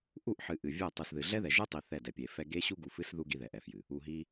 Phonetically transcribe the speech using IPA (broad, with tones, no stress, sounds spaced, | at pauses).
ʔ u˦˨ ʔ ħ ɨ˨ ʔ ɨ˨ vʲ ɛ˦˨ tˤ ɨ˨ s ð ɨ˨ ɮ ɛ˦ ð ɛ˨ ʒ ɨ˦ tˤ i˨ θ ɛ˦˨ d ɛ˨ pʲ e˨ f ɛ˦ ɡ e˦ ɕ u˦ ɡ u˨ f ɨ˦ s ð u˦ ɡ i˦ ð ɛ˨ ʔ ɛ˨ f j ɨ˨ | u˨ ɦ i˦